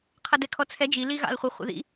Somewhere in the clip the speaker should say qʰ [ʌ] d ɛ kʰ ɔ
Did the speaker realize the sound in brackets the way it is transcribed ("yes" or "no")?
yes